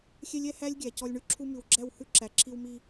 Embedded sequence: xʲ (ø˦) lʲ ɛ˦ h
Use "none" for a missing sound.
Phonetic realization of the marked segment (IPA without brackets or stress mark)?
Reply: ɛ˦